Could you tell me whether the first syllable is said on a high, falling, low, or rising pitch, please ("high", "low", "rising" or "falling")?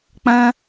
high